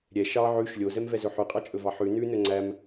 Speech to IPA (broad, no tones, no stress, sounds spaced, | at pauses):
ɾʲ ɛ ʃ ɑ ʕ ʉ ʃ lʲ o z ɛ m v ɛ z ɵ ħ y qʼ ɑ t͡ʃʼ ɵ v ɑ ħ ʉ n ʉ n ɵ ŋ͡ǀ æ m